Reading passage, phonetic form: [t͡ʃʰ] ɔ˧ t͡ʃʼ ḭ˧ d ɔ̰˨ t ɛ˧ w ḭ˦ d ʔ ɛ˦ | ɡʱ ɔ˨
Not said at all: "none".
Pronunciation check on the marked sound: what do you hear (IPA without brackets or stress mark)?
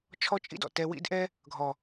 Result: t͡ʃʰ